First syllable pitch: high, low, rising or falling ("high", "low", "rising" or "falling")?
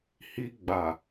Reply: high